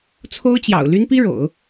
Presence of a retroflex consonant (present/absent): present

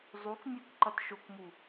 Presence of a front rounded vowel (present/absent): absent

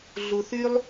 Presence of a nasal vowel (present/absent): absent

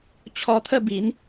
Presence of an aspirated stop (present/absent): present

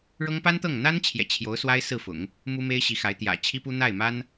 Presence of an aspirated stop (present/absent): present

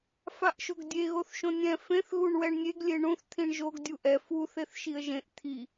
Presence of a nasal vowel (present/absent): present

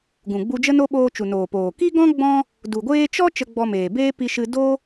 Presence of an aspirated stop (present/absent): absent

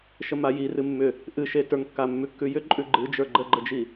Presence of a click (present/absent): present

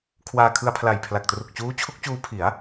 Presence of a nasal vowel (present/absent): absent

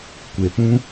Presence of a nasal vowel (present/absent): present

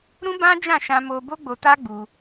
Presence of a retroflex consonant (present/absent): absent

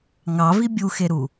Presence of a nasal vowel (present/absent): absent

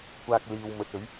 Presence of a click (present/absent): absent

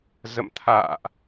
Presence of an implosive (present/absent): absent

